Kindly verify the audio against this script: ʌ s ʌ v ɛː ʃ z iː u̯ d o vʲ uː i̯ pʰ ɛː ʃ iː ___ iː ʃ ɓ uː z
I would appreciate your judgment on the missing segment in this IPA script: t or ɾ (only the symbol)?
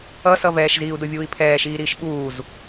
ɾ